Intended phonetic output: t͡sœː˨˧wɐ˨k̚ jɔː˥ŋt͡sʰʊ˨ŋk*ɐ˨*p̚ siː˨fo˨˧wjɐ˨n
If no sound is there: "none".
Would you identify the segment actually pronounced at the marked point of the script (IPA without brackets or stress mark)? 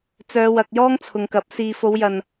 ɐ˨˥